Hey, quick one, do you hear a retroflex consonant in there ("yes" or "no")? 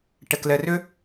yes